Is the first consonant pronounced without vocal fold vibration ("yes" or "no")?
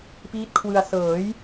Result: yes